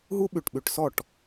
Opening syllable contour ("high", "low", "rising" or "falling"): high